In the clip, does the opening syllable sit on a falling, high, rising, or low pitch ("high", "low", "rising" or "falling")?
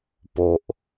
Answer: low